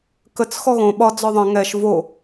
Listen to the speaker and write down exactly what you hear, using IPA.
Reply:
kət͡s xɔɣõ ɓɒ d͡zɔðˤə̃ ŋɛʃ vo

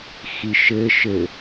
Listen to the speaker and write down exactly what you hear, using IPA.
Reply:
xiʃɘ ʃɘ

